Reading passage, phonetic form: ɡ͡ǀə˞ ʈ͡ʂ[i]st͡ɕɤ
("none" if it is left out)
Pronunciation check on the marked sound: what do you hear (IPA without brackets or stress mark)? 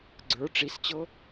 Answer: i